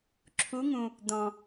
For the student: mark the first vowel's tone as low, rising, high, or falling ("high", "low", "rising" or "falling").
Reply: rising